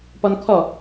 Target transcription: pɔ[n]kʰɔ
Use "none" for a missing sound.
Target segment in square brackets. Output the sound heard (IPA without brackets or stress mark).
n